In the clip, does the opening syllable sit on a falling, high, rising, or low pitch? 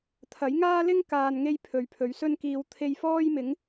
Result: rising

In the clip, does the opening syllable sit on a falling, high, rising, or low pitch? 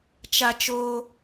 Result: high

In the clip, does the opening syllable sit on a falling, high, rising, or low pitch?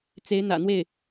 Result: rising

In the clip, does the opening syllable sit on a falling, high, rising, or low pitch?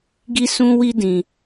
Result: high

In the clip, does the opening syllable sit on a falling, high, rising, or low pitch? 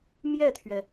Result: falling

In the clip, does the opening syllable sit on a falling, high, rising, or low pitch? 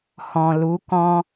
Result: low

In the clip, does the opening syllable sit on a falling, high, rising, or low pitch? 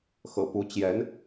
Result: low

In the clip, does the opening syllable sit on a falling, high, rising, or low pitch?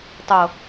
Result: low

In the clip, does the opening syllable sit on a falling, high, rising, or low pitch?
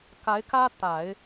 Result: rising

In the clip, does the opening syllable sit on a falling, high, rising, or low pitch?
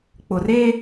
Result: low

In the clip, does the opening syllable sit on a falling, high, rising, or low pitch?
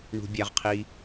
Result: low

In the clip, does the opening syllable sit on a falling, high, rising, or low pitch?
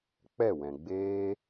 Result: falling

